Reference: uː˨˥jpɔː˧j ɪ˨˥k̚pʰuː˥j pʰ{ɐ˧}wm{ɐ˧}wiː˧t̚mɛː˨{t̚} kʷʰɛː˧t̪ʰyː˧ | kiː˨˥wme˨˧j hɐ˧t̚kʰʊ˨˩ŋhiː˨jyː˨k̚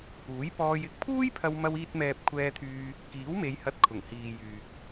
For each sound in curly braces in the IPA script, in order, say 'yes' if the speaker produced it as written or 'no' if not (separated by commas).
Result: yes, yes, no